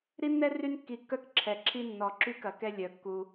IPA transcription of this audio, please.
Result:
ɾ i˦ nː ɛ˦ r y˦ n kː i˨ kː œ˦ k ǁʰ ɛ˨ ǁʰ i˦ nː ɔ˨ ǁ y˦ k ɐ˨ k ɛ˦ lʲ œ˨ kː u˦

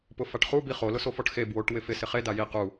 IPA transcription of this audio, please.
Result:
p ʊ f a ʈ χ u b i χ o l ʊ s o f ɔ ʈ x e b w o ʈ w ɪ f ɪ s ɪ χ e d a j i q u

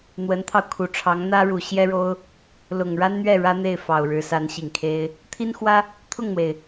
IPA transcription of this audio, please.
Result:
n̪ w ə˧˥ n t̪ʰ ɑ˧ ʊ̯ kʰ u˨˩ ʈ͡ʂʰ ɑ˧˥ ŋ n̪ ä˥ ɻ u˨˩ ɕ j ɛ˥ ɻ o˥ ʊ̯ | l ʊ˨˩ ŋ ɻ a˥ n n̪ ɥ ɛ˥˩ ɻ ä˥ n̪ e˥˩ ɪ̯ f ɑ˨˩ ʊ̯ ɻ ɻ̩˧˥ s a˧˥ n ɕ i˨˩ ŋ kʰ e˥ ɪ̯ | t̪ʰ i˥ n x w ä˥ | t̪ʰ ʊ˥˩ ŋ n̪ w e˩ ɪ̯

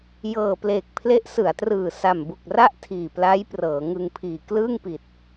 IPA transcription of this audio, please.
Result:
j ɤː˨˩ p l eː˨˩ k̚ pʰ l e˦˥ ʔ s ɯ˩˦ a̯ t r ɯː˨˩ s a˨˩ m b u˨˩ k̚ r a˥˩ ʔ tʰ iː˨˩ p l a˦˥ j p r ɤː˩˦ ŋ ɯ˧ ŋ pʰ iː˨˩ k l ɯː˥˩ ŋ p i˨˩ t̚

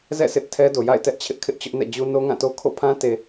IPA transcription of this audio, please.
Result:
z ɛ̰˦˨ s ɪ˦ ʔ tʰ ɛ˦ d o˨ j a̰˦˨ ɪ̯ t ɛ˦ ʔ t͡ɕʰ ɪ˦ ʔ kʰ ɪ˦ ʔ t͡ɕ ʊ˦ ʔ n ɛ̰˦˨ d͡ʑ u˦ n o˦ ŋ ã˦˨ t o˦ kʰ o̰˦˨ pʰ ã˦ t e˨

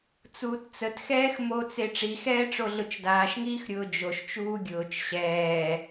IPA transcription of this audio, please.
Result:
t͡s uː t t͡s ə t x ɛː x m o t͡s e ʈ͡ʂ i x ɛː ʈ͡ʂ o ɮ ʊ t͡ʃ d aː ʃ ŋ iː x ɾʲ ʊː d͡ʒ o ʃ t͡ʃ uː ɡʲ ʊː t͡ʃ ɕ ɛː

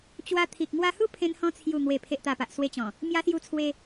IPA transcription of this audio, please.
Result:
t͡ɕ w a˧ t̪ʰ i˨ k̚ ŋ w a˧ h u˥˧ pʰ ẽ˧ n h ɔ̃˧ t͡sʰ j u˨˩ ŋ w e˨˩ pʰ e˨ ʔ t̪ a˨˩ p a˨ ʔ s w e˧ t͡ɕ ɔ̃˨˩ | m j a˧ s j u˧ t͡sʰ w e˧

